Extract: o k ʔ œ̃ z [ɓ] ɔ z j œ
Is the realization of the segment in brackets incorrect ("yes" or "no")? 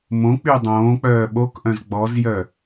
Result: yes